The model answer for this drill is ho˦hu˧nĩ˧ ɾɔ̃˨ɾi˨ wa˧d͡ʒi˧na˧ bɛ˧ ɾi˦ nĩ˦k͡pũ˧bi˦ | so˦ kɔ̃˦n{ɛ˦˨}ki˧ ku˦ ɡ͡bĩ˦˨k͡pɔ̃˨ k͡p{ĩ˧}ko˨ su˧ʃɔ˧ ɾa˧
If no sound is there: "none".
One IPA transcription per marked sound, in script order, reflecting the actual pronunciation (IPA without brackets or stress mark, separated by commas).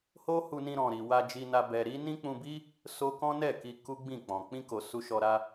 ɛ˦˨, ĩ˧